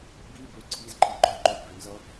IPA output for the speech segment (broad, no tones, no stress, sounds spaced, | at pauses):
b i b ø ǀʰ i z ǃʼ i ɡ͡ǃ œ ǃ œ j b ø n z ʌ